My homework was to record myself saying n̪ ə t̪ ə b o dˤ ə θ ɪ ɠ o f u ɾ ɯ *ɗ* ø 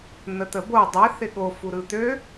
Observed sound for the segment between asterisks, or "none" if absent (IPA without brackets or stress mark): t̪